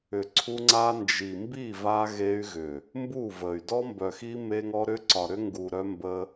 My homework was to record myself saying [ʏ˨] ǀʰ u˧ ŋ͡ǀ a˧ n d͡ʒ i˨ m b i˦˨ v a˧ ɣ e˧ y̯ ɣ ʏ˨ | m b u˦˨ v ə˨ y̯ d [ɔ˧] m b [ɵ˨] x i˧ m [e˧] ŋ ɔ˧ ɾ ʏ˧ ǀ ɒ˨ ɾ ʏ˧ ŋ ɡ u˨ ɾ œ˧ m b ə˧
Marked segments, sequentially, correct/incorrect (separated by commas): correct, correct, incorrect, correct